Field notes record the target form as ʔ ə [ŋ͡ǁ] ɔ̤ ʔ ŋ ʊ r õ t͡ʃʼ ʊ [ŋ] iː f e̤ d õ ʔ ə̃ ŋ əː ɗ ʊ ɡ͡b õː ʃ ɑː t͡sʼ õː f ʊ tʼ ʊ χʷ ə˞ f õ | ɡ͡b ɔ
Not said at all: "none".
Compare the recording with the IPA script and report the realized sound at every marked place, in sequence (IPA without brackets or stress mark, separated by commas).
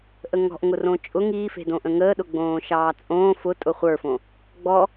ŋ, ŋ